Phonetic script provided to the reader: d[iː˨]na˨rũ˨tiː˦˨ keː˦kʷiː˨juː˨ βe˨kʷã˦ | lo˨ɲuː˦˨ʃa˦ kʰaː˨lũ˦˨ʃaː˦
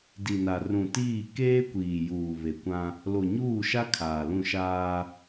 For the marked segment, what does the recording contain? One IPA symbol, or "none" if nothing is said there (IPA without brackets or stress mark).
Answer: i˨